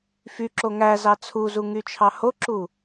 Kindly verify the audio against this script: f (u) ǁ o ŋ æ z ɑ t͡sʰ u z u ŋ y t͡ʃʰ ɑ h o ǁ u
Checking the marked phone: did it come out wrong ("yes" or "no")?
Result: yes